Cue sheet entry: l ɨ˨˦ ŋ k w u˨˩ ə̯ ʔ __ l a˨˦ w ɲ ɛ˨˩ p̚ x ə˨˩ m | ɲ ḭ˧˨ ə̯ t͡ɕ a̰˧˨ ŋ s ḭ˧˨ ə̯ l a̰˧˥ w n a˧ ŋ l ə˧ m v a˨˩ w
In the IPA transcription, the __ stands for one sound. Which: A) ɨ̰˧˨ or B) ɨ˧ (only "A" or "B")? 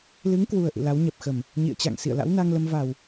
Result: A